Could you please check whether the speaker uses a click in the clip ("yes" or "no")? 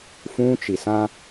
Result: no